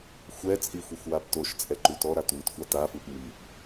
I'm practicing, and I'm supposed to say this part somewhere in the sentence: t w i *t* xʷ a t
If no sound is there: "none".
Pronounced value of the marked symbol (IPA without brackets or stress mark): t